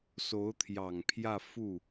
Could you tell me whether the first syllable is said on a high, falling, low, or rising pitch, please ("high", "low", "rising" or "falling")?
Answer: rising